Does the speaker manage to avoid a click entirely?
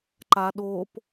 no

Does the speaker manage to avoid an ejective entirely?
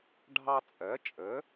no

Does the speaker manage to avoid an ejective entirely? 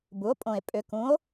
no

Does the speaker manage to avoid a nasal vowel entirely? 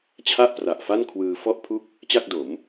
yes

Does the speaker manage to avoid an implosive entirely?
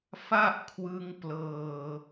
yes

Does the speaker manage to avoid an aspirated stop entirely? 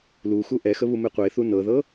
yes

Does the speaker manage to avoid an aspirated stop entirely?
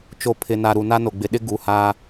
no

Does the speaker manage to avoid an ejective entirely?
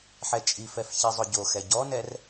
no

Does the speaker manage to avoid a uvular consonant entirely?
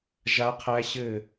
no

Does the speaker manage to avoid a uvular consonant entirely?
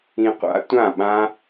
no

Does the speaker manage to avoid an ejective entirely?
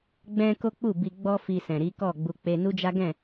yes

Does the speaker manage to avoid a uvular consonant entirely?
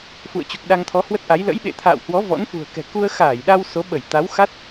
yes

